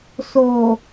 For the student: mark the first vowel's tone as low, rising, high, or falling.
low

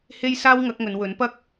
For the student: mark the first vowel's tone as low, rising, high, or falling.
high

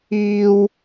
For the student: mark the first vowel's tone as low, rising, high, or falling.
high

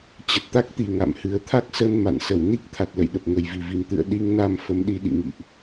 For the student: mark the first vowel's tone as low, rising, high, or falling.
low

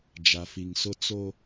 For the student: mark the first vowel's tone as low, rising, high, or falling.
low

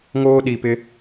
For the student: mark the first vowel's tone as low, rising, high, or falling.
high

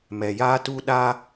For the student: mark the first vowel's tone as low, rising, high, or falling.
low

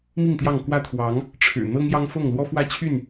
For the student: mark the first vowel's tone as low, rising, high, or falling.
falling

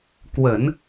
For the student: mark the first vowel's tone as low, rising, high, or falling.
low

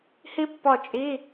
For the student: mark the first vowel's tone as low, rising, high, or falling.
high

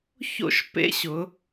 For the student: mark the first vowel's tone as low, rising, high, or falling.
high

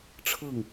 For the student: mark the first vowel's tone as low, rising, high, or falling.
falling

